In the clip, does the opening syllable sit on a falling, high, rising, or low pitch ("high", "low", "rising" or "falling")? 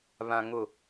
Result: low